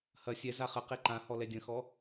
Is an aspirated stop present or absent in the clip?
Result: absent